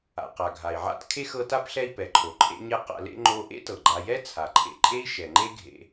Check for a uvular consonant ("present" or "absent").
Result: present